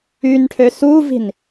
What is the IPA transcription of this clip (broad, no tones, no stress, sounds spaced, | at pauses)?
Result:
y n ʈʰ ø s u v i̤ n